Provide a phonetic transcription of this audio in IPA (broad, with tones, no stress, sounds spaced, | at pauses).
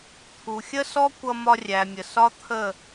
t̪ʰ u˨ xʲ ə˦ s ɔ˦ kʷ ʌ˧ m ɒ˧ rʲ æ˨ mʲ ə˨ s ɒ˦ t̪ʰ ə˦˨